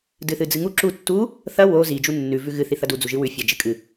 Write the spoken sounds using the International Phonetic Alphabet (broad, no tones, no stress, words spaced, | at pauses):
dɨθɨd͡zɨŋu ǁu tːu | θɐ wo zi d͡ʒunːʉ vʉɣɨ θiθɐdu d͡zuʒɨwʉ fʲad͡ʒɨkʼɨ